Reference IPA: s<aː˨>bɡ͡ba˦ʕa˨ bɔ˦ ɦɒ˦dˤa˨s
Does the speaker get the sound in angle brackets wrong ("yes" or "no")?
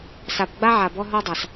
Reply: yes